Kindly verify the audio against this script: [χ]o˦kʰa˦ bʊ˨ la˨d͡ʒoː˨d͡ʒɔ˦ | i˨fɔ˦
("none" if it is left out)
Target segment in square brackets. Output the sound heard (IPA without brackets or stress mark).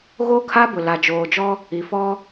ɣ